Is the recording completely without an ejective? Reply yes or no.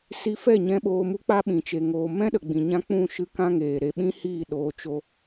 yes